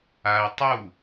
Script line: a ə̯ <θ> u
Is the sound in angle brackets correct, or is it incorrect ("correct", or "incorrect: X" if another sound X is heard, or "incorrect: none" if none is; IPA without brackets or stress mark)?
incorrect: tˤ